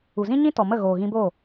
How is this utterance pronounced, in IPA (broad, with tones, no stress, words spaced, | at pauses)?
u˨zĩ˦ɲĩ˦tɔ˨ mə˦˨ɣoː˨ɣĩ˧boː˦˨